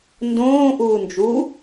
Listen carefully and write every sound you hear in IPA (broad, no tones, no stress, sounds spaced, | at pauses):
n d õː ʔ uː n d͡ʒ u